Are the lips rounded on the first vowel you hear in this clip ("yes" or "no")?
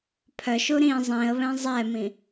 yes